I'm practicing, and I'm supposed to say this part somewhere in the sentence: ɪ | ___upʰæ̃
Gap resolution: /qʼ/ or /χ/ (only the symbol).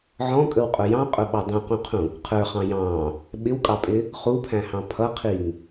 χ